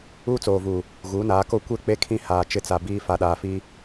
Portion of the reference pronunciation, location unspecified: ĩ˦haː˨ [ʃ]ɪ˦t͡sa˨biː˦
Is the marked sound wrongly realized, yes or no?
yes